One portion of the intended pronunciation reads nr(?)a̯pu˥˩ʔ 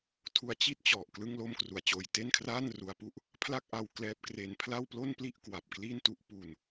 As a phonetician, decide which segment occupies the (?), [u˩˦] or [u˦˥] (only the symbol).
u˦˥